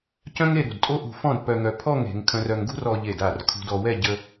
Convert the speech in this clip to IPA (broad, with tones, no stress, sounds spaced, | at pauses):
c œ̃˥ ŋ e˥˧ ɾ ṳ˧˩ d tʼ o˥ ʔ ṳ˧ f ɔ̃˥˧ d p œ˧ ŋ œ˧ pʰ ɔ˥˧ ŋ e̤˩˧ ŋ kʰ œ̃˧ r œ˧ ŋ ɡ ṳ˥ r ɔ˧ ʎ e˧˩ d a˧˩ r kʰ ṳ˧ d ɔ˧ w ɛ˥˧ ɟ ə˧